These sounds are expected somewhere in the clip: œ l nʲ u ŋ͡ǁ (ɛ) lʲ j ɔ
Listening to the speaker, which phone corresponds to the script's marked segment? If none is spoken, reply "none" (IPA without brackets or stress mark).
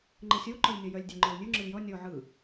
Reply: ə